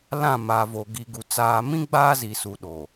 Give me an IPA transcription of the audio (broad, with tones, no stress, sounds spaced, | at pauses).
l ã˦˨ m a˨ v oː˨ ɡ i˨ ɡ u˨ t͡s aː˨ m ĩ˦ ɡ͡b aː˦ z i˨ s u˨ ɗ o˨